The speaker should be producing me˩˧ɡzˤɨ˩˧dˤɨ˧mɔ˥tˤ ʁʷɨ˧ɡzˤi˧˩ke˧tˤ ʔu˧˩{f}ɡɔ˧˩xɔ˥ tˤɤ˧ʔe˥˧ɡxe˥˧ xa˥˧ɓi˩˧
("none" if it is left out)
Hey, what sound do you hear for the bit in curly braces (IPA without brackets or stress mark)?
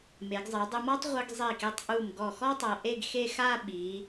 m